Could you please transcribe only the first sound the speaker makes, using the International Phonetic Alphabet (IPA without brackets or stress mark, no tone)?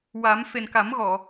w